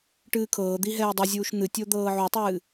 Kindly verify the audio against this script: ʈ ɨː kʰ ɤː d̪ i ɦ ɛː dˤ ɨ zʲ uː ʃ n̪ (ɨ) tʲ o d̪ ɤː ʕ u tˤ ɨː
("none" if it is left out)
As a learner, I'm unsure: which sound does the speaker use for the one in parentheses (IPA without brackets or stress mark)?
ɨ